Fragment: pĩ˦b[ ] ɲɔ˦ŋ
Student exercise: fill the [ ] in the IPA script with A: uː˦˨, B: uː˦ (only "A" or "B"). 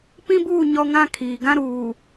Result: A